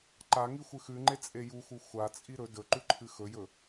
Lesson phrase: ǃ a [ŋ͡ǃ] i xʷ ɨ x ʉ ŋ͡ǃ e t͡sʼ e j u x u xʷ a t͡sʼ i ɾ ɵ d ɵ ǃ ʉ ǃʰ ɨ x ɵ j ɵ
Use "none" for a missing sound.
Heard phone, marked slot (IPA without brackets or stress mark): ŋ